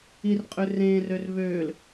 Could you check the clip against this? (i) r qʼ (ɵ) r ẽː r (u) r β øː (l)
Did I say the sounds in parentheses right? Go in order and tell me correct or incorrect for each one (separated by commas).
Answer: correct, incorrect, incorrect, correct